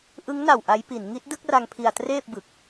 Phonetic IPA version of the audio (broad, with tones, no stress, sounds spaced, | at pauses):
ʔ ɯ˦˥ ŋ n a˨˩ w ʔ a˦˥ j p i˩˦ n ŋ i˦˥ t̚ d ɯ˥˩ k̚ r a˧ ŋ pʰ i˧ a̯ t r eː˥˩ p̚ b ɯ˨˩ k̚